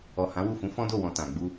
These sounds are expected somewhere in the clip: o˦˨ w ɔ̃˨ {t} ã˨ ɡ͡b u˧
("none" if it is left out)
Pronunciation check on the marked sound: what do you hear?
t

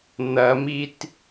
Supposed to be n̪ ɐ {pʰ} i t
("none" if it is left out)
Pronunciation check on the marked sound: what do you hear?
m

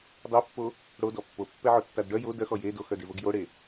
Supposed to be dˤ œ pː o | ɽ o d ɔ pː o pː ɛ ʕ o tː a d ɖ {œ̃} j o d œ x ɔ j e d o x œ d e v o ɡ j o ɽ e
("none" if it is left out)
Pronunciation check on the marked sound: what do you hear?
œ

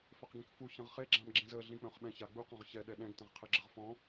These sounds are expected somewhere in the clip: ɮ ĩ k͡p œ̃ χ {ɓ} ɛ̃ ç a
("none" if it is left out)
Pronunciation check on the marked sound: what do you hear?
ɓ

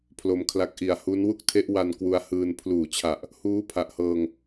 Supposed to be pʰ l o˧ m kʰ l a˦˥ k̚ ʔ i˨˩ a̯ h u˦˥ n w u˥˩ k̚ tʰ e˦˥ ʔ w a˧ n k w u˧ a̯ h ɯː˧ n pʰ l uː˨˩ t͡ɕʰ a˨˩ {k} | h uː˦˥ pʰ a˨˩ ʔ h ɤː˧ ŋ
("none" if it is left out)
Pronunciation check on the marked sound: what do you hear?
ʔ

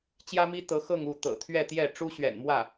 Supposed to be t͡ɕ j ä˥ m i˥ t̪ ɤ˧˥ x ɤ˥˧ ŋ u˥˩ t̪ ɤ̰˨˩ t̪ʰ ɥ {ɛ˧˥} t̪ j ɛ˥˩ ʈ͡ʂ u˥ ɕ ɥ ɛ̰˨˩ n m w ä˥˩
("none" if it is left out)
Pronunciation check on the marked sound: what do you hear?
ɛ˥˧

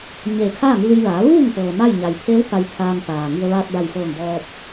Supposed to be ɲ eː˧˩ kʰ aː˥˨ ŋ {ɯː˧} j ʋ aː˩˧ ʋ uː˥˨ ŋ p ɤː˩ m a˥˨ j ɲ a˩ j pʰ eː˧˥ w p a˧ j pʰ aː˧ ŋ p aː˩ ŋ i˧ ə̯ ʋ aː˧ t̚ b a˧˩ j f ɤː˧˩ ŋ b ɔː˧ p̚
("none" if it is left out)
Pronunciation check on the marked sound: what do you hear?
ɯː˧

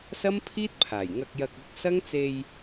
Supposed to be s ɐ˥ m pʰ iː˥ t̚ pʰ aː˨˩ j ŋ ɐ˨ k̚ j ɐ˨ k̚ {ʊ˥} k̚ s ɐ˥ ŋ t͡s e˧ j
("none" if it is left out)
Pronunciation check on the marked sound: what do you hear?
ʊ˨˥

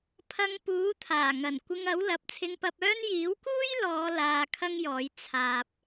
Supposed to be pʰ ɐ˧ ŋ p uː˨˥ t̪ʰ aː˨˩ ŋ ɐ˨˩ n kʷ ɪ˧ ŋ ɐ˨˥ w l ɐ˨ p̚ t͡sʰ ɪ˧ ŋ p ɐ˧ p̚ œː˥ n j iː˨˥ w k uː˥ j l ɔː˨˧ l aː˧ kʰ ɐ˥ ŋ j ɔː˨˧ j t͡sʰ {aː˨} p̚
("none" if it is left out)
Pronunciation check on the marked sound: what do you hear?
aː˨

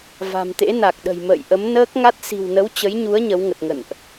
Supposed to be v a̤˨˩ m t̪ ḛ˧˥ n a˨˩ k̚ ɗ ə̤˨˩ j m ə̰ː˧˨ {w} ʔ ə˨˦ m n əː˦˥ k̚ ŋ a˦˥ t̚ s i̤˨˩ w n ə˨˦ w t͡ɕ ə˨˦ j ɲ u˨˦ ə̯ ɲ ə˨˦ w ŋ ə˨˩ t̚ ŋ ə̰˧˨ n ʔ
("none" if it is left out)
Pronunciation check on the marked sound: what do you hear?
j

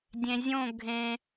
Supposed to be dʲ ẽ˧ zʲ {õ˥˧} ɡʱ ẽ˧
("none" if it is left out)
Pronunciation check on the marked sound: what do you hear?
õ˥˧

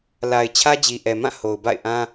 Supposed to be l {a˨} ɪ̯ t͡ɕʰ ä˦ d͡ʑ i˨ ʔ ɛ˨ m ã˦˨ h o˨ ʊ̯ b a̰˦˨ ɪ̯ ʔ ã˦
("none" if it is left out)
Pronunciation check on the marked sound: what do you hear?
a˨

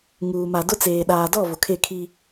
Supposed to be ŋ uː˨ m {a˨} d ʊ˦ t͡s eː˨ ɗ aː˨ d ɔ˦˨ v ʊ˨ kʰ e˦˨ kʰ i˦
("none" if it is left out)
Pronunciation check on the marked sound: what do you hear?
a˨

